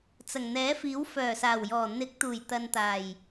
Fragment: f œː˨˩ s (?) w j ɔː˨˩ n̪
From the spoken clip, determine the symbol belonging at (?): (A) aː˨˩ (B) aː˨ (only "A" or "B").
A